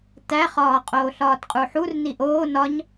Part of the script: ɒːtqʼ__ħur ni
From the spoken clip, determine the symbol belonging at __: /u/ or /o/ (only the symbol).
u